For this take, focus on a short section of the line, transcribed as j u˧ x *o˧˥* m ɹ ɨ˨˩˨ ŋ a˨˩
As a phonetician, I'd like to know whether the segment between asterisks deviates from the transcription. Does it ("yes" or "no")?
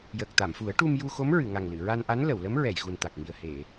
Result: no